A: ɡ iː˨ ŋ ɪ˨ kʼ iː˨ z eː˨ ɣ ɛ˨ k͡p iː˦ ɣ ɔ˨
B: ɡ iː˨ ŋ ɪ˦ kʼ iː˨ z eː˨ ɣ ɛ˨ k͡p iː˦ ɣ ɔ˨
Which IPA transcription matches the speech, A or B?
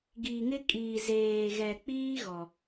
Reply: B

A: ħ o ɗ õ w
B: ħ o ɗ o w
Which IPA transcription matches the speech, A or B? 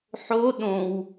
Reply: A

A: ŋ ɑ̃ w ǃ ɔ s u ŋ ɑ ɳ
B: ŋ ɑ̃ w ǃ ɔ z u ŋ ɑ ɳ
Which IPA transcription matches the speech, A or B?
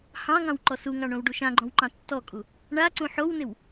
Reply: A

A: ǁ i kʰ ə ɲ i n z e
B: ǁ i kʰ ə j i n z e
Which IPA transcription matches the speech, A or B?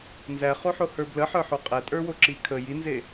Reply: B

